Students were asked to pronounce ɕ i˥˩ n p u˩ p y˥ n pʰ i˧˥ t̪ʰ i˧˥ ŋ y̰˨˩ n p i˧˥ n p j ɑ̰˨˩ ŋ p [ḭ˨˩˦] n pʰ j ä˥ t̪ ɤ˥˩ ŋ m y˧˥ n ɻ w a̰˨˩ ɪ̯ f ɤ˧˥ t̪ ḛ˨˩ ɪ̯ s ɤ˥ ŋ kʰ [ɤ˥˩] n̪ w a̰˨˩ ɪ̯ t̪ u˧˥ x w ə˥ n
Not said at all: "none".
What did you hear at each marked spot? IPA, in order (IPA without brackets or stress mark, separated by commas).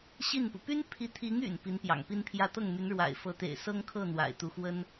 i˥, ɤ˥˩